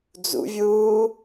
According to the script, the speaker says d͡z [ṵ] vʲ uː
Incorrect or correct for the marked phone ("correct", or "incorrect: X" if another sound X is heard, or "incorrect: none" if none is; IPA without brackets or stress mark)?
correct